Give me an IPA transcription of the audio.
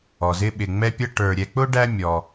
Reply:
ɔ˩ z ɪ˦ ɓ ɪ˨ ŋ͡m ɛ˦ pʲ ʌ˦ ʈ ə˞˨ ɾʲ ɛ˨ k͡p ʊ˥ ɖ æ˦ mʲ ɔ˨

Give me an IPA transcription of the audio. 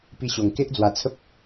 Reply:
p i˦ ɕ o˧ ŋ k e˦ ʔ d͡z w a˧ t͡sʰ ə˦ p̚

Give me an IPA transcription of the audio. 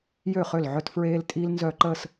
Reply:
j ø˥˩ χ ø˥˩ l ʕ œ˥ t f ɹ eː˥ l tʼ iː˥ l n z œ˥˧ ǃ əː˥˧ s

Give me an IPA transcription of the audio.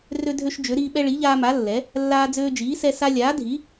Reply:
r ø˦ dʱ ø˦ ʃ d͡ʒ ø˨˥ ɾ iː˦ ɓ ɛ˦ ɭ i˨˥ ʎ aː˦ m a˨˥ lː ɛ˨˥ | lː aː˦ d͡z øː˦ d͡ʒ iː˨˥ s ɛ˦ s a˦ lʲ aː˨˥ dʱ i˨˥

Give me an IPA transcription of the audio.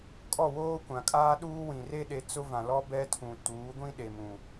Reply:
kʼ ɔ˦˨ w oː˦ kʷ ã˨ kʼ aː˦ ɗ uː˦ w ĩ˨ r e˦ ɗ e˨˦ t͡s ʊ˦ v ã˨ l ɔ˦ b ɛ˦ tʰ ũ˨ t uː˨˦ ɡʷ ĩ˦ ɗ e˨ m ũ˨

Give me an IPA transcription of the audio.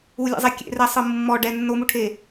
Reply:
u lʲ ḛ zˤ e kʲ ḛ r ɛ sˤ ɯ mː ɔ ɖ ɛ nː o m u ʈʰ e

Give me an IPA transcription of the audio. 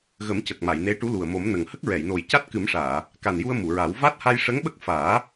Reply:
ɣ ə˨˩˦ m c ə˨˩ k̚ m a˨˩˨ j n e˧˥ ʈ u˧˥ l u˨˩ ə̯ m o˨˩˦ m n ə˨˩ ŋ h ə˦˥ k̚ ɹ ɛ˨˩˨ j n o˨˩ j c a˦˥ t̚ k ɨ˨˩˦ m ʂ aː˨˩˨ | k a˨˩ n j u˧ ə̯ m u˨˩˨ ɹ a˨˩˦ w v a˦˥ t̚ h a˧ j ʂ ə˧˥ ŋ ɓ ə˦˥ k̚ f aː˨˩˦

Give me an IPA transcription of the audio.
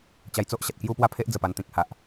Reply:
t͡ɕ a˧ j t͡s o˦ ʔ ɕ a˨ t̚ k j u˥˧ p w a˥˧ pʰ e˦ ʔ d͡z ə˨˩ p a˧ n t̪ ĩ˨ k̚ h a˨ ʔ

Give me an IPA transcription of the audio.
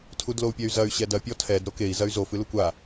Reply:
tʰ u d l o u̯ pʲ ɛ y̯ z ɐ y̯ ɕ ɛ d ɐ pʲ ɔ tʰ ɛ d ɾ o k e i̯ z ɐ y̯ z o f ɨ l u kʷ a

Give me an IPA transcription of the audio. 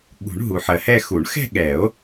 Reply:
ɠ ṳ˨˩˦ ɳ ɦ u˨ ħ ɜ˨ h ɛ˥˧ x u˨˩˦ ɳ x ɛ̤˥˧ ɠ ɛ˨˩˦ o̯

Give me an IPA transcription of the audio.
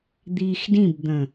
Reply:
d̪ iː x d ĩ b d̪ ə̃

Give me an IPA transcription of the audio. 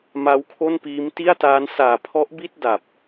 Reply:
m a˦˥ w kʰ o˥˩ n p iː˦˥ m t i˥˩ a̯ t aː˦˥ n s aː˨˩ pʰ ɔ˦˥ ʔ b i˥˩ t̚ d a˨˩ p̚

